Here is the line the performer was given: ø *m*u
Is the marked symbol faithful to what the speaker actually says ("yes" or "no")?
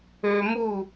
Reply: yes